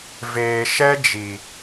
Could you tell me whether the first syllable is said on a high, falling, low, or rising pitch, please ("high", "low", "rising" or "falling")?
low